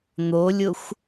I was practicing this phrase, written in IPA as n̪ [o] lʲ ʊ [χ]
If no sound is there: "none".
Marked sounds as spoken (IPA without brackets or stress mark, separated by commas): o, xʷ